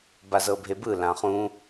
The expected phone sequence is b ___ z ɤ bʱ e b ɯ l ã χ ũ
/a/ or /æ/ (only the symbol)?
a